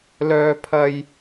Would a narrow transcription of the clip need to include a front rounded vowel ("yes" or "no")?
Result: yes